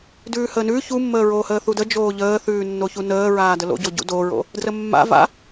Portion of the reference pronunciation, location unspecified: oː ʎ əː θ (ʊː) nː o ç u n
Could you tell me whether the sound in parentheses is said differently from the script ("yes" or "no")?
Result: yes